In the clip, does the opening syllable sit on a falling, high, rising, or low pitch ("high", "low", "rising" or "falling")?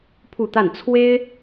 falling